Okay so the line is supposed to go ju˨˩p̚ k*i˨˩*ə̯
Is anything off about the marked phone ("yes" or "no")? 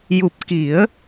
yes